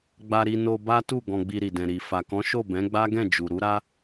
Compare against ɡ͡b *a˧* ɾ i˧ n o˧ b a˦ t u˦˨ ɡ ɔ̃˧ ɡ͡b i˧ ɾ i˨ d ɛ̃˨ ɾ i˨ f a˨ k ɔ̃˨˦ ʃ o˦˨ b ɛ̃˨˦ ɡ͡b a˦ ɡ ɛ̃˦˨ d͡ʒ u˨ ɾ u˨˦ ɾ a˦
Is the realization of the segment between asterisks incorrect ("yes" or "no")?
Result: no